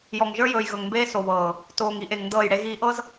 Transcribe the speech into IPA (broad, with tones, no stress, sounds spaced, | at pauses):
j ɔ˨ ŋ ʒ ə˞˦ j ɵː˨ j ɣ ɵ˨ ŋ m b eː˦ s o˨ β ɤː˨ | t oː˨ ŋ i˦ ʔ e˨ ŋ n d ɤː˦˨ j ɽ e˦ ɣ iː˦ ʔ ɤ˦ z